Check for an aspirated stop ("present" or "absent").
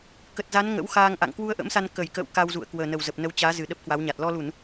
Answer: absent